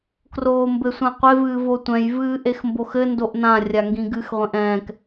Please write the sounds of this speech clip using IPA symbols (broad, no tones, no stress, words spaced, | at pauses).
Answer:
kroːmbɘsʷãqʷev ɨːvotʷɛ̃j vɨːʔexmboxɘ ndoʔnã rʲaŋɡĩɡɨx ʁʷẽʔɛ̃ːk